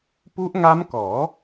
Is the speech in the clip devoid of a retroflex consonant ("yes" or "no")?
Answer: yes